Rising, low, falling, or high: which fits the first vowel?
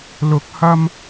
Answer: rising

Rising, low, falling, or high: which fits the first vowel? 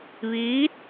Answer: rising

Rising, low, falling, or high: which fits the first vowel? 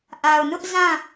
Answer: low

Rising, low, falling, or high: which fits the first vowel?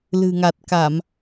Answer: low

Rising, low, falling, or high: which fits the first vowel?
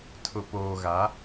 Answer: low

